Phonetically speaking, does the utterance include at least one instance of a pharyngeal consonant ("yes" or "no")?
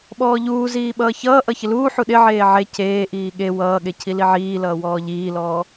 yes